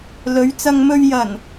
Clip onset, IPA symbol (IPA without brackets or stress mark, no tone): l